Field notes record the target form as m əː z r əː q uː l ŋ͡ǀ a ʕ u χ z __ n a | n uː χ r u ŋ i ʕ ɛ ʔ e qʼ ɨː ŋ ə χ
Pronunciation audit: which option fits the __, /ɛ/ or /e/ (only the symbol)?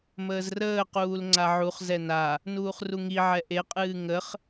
ɛ